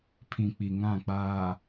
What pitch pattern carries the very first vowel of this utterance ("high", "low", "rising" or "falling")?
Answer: low